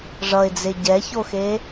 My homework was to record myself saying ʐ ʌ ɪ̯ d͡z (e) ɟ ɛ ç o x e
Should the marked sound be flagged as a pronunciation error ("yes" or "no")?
no